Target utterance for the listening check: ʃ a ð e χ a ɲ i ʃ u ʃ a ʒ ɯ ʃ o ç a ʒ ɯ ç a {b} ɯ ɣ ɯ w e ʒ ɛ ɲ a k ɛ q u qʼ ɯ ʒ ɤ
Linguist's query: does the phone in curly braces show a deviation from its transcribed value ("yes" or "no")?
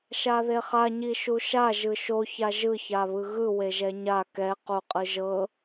yes